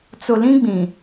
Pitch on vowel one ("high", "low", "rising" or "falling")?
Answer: low